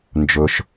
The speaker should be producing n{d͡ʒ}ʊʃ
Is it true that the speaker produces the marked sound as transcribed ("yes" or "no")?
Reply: yes